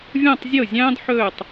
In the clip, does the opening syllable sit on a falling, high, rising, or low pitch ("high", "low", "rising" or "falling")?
falling